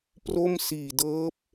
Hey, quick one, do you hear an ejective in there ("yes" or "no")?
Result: no